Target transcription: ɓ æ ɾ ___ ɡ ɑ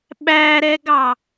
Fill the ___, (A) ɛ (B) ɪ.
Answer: A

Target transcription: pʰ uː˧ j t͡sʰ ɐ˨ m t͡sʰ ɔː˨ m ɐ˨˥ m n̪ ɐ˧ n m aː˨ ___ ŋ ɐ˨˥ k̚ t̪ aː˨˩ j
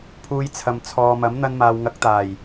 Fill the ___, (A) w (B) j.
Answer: A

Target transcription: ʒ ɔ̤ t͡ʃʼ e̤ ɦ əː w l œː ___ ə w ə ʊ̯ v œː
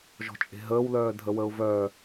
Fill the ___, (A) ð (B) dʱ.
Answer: B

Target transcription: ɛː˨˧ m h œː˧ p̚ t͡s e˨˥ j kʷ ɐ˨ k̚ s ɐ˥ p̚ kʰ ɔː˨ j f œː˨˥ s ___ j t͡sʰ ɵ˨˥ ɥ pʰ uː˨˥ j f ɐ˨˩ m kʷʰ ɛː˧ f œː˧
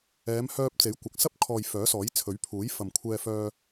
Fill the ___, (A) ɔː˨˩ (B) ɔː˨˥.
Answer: B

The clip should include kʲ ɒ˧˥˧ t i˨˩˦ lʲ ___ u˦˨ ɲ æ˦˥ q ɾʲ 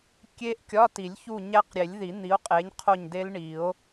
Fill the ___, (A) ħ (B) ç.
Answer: B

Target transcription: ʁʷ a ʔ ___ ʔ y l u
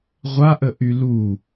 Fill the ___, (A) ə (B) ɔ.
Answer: A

